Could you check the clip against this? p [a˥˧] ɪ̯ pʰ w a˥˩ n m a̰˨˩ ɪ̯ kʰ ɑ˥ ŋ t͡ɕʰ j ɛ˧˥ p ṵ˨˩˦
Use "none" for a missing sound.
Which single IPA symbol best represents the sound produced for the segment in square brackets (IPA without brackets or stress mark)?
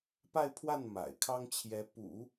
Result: a˥˧